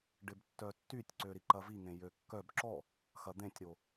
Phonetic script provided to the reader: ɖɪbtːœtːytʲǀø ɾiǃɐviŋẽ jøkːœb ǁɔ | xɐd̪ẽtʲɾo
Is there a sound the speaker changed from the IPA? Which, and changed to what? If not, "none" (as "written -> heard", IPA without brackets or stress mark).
none